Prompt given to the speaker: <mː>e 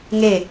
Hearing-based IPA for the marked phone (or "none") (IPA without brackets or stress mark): ŋ